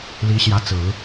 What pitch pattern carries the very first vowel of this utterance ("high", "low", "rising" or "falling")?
rising